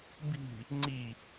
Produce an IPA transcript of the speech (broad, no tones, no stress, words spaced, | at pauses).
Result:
bi̤ | ŋ͡ǀi